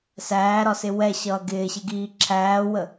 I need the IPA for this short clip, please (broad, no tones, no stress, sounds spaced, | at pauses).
s æː ɾ ɒ s ɪ w ɛ ɕ ʌː ɡ ɪː ɕ ɪ ɡ iː ǁʰ æː w ə